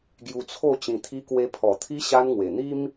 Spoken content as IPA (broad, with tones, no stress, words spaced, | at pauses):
ɡju˧t͡sʰo˥˧ t͡ɕĩ˧t̪ʰi˦kwe˦ pʰɔ˨˩t̪ʰi˦ ɕa˦nŋwe˨˩ n̪i˦m